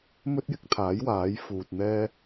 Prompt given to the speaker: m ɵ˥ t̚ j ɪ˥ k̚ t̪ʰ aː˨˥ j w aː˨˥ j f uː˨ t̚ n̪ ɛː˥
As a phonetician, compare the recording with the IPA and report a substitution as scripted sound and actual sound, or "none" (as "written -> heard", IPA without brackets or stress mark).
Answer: none